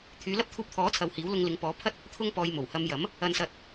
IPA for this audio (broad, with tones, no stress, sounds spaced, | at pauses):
t̪ʰ yː˨˥ l ɐ˥ p̚ t̪ʰ uː˧ p̚ t̪ʰ ɔː˨˥ t͡sʰ ɐ˨ w h iː˨˥ w l ʊ˧ ŋ l ɪ˨˥ ŋ p ɔː˨˥ pʰ ɐ˥ t̚ | t̪ʰ ʊ˧ ŋ p ɔː˨ j m o˨˩ w h ɐ˧ m j ɐ˨˥ m | ɐ˧ n s ɐ˧ t̚